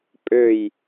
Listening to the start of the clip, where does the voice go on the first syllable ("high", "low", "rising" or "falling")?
falling